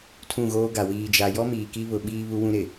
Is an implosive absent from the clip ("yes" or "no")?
no